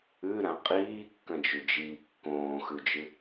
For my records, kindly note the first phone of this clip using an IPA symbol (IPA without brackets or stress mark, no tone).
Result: ʉ